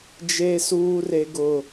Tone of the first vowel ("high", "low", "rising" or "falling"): high